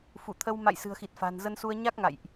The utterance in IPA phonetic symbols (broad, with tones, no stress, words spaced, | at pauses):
fu˧˩t̪ʰə˧w ma̰˧˨j sɨ̤˨˩ə̯xi˨˩t̚ fa̤˨˩nzə˧nsu˧ə̯ ɲa˦˥k̚ŋa̰˧˨jʔ